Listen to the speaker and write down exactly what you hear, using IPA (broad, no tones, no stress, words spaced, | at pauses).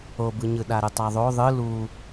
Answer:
obɯɲɯ ɗaɾɯtˤaðˤo ðˤɯ lu